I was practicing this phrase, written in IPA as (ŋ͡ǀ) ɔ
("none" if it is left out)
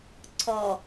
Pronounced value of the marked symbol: ǀʰ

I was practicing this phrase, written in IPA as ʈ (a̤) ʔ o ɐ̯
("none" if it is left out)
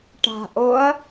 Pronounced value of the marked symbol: a̤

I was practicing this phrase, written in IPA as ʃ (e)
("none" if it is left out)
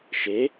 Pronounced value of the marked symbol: e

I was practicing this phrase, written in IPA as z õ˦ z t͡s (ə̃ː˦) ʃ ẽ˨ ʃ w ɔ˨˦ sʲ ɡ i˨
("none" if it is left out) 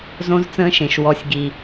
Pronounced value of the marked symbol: ə̃ː˦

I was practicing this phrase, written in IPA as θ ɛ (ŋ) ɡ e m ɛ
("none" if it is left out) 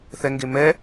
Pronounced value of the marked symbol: ŋ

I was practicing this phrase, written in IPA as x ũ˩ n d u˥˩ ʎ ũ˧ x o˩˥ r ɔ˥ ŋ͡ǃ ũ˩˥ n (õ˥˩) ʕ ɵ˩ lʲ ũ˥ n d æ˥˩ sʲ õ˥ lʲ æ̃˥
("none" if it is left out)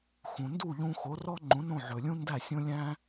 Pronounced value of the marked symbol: õ˥˩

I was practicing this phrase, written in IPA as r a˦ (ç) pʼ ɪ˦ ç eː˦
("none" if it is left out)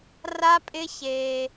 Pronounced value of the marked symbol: none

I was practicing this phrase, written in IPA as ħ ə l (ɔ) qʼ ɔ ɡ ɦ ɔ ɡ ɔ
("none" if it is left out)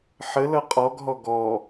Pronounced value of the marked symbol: ʌ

